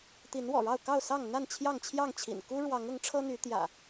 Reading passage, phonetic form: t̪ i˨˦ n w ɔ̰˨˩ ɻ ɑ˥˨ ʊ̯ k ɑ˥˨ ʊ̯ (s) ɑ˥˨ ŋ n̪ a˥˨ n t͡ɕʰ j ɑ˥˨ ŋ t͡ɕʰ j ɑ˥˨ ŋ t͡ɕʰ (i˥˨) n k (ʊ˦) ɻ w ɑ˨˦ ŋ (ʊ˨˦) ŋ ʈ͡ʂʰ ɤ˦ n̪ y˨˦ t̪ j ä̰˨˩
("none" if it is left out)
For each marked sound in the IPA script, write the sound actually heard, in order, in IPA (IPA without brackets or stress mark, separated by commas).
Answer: s, ḭ˨˩, u˦, ʊ˨˦